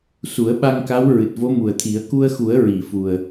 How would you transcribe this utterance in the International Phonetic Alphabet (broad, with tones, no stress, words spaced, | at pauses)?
su˨˩˦ə̯ɓa˧ŋka˧˥w ɹɨ˨˩t̚vo˧˥mu˨˩ə̯t̪ʰi˨˩˦ə̯ ku˧ə̯xu˨˩˦ə̯ ɹi˨˩˨fu˨˩ə̯